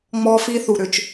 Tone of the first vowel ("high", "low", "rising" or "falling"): high